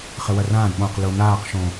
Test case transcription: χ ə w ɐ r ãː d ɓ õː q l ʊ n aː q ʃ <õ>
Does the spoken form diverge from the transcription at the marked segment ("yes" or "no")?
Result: no